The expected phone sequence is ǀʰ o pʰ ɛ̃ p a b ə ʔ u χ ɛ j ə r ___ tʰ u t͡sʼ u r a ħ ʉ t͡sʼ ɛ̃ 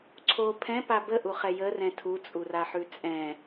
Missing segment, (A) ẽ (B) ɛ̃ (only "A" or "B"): B